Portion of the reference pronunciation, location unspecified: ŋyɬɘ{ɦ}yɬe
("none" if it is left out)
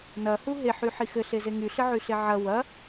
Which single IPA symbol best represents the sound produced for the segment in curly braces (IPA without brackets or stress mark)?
ʕ